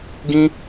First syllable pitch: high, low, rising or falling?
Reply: high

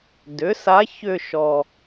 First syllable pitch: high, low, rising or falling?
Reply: rising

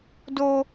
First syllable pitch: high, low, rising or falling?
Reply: high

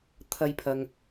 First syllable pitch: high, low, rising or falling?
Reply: high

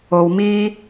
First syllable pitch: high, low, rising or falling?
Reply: low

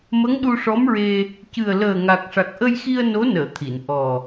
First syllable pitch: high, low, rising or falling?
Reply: rising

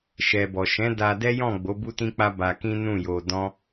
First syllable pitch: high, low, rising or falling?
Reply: low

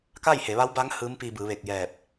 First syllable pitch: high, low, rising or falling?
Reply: falling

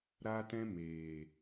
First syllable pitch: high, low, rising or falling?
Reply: high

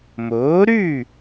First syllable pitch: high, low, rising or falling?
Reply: rising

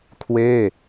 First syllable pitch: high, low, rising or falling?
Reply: falling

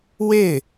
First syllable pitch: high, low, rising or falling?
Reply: falling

